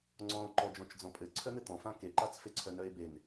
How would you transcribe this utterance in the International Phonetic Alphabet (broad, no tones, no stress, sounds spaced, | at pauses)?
ŋ͡ǀ ɔ̃ o̯ ǃ ɔ d͡ʒ ɔ̃ t͡ʃ d͡z ɔ̃ pʼ ɘ ǀʰ œ n̪ ɘ t̪ ɔ̃ f ã k e ǃ a t͡s f e ǀʰ œ n œ e̯ b e n